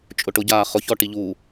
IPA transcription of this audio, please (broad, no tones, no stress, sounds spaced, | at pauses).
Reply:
t͡ʃʼ ʊ ʈ ʊ ɟ aː χ ʊ ç ɔ ʈ i ʎ u